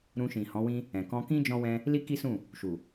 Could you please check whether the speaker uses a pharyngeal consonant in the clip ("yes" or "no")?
no